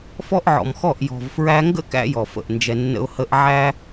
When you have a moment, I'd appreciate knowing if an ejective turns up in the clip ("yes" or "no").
no